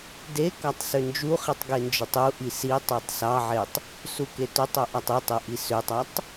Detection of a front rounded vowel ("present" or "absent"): present